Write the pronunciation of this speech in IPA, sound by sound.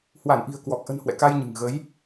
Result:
h w a˧˩ n ʔ i̤˨˩ ə̯ k w ɔ˨˩ k̚ ʔ ə̤˨˩ n h w ɛ̰˧˨ k a˧ j ɲ ɨ̤˨˩ ŋ ɣ ə˨˦ j

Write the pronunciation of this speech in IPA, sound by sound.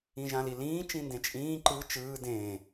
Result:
ĩ ʒ ã l i l ĩː t͡ʃ ĩ n d ẽ t͡ʃʼ ĩː ǃ ɯ t͡ʃ ɯː d ẽː

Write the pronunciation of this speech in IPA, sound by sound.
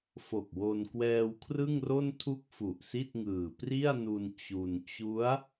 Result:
f o˨˩ k̚ w o˧ n k w ɛː˧ w kʰ r ɯ˥˩ ŋ r o˥˩ n tʰ u˥˩ k̚ f u˨˩ ʔ s i˥˩ t̚ ŋ ɯː˨˩ p r i˥˩ a̯ n u˧ n t͡ɕ u˧ n t͡ɕ u˦˥ a̯

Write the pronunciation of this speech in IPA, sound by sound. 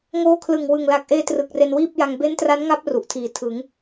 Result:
ŋ oː˧ kʰ l ɯ˨˩ ŋ w ɯ˨˩ ŋ l a˨˩ k̚ ʔ eː˧ t r ɯ˨˩ k̚ r e˧ n w iː˥˩ p̚ j a˧ ŋ b e˦˥ n t r a˦˥ n ŋ a˦˥ p̚ r u˨˩ ʔ tʰ iː˨˩ tʰ ɯ˩˦ ŋ

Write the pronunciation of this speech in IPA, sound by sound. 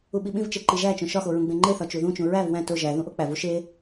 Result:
u ɓ i ɓ ĩ v t͡ʃ e ǃ i ʒ æ t͡ʃ õ ʃ ɒ x o ɹ ũ ɡ͡b ẽ ŋ͡ǃ e θ ɒ t͡ʃ u ð ũ t͡ʃ ũ ɹ æ v w æ̃ t o ʒ æ ð ũ ʔ o k͡p æ v u ʃ e

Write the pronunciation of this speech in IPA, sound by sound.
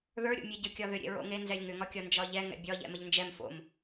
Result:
ð ə˞ ɾʲ o̰ mʲ ɛ ɟ ə˞ kʲ ɒ ð ʏ ɾʲ ḛ ɹ o̰ ŋ e n z ɛ lʲ ŋ ʏ ŋ ɒ kʲ ɒ n d͡ʒ ɒ ʎ ɛ ŋ ɛ̰ bʲ ɒ ʎ ɛ̰ m ə ʎ n d͡ʒ ɛ m f o̰ m

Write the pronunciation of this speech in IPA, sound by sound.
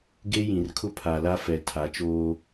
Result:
ɡ e˦ j ĩ˨ r kʰ ʊ˦ pʰ a˨ l a˦ f ɛ˨ tʰ a˨˦ t͡ʃ oː˦

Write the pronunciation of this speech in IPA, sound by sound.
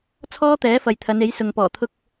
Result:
t͡sʰ ɔː˥ t̪ ɛː˨˥ f ɐ˨ j t̪ʰ ɐ˨˧ n e˨˥ j s ʊ˨ ŋ p ɔː˨˩ t̪ʰ ʊ˧ k̚

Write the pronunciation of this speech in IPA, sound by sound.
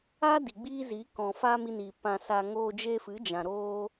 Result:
aː˦ d i˨ ɡ͡b iː˦ z iː˨˦ k ɔ̃˨ f aː˦ m i˧ n iː˨ p ã˧ s aː˧ ŋ oː˧ d͡ʒ e˧ f ɨ˨˦ d͡ʒ ã˨ ɾ oː˦

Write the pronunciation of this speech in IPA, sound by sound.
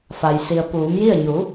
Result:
f a˩ j s i˩ ə̯ p uː˩˧ m j i˥˨ ə̯ ɲ u˩˧

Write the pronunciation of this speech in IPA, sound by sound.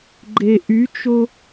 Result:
ɡ͡ǃ e ʔ y t͡ʃ o

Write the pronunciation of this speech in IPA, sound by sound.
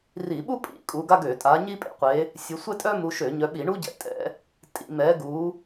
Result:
r i˧˩˧ ɓ u˥ pʼ ḭ˨˦ kʼ u˨˦ ɡ a˥ ɡ ø˧˩˧ tʼ a˨˦ ɲ i˥ pʼ ḛ˥ qʷ e˨˦ | sʲ u˨˦ sʷ ɛ˥ tʼ œ˥ m u˨˦ ʃ ø˧˩˧ ɲ œ˨˦ ɓ i˧˩˧ ɳ u˥ ɟ ɛ̰˨˦ tʼ ɛ̰˨˦ | tʼ ḭ˧˩˧ m ɛ˨˦ ɡ u˨˦

